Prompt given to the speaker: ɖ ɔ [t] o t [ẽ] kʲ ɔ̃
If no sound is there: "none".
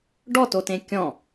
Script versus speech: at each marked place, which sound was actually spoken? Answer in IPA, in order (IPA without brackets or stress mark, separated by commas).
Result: t, ẽ